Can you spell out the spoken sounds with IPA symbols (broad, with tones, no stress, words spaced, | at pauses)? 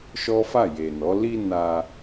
ʃɔ˦fa˦˨ je˨nɔ˨˦ li˧ na˧